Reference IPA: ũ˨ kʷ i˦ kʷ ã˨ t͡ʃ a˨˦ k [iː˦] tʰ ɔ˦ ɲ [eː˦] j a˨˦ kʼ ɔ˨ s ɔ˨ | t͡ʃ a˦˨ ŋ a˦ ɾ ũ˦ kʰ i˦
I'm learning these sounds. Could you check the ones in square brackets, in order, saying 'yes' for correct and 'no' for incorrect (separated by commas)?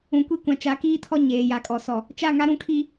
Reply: yes, no